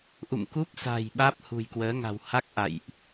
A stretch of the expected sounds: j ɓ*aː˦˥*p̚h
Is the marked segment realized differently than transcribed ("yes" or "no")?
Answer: no